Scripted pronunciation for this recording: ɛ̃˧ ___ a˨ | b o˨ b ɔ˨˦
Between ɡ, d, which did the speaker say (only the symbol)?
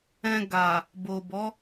ɡ